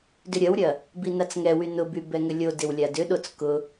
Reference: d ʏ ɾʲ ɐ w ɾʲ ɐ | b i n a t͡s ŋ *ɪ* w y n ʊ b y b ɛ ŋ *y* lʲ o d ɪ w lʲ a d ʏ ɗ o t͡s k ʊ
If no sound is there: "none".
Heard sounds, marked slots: ɛ, ʏ

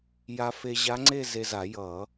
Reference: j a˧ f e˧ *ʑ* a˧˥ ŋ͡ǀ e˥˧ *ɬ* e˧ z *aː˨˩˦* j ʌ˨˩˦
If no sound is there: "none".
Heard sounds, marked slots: ʑ, z, a˨˩˦

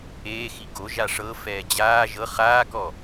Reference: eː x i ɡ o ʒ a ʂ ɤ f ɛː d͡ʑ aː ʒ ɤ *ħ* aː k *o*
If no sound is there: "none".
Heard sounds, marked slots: χ, ɔ

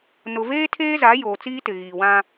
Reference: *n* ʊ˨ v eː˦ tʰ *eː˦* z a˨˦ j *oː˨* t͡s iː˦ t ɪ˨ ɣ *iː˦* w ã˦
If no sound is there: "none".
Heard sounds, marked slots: n, eː˦, oː˨, iː˨

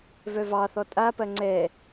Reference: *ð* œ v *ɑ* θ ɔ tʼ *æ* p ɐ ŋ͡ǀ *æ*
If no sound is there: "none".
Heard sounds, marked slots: v, ɑ, a, ɛ

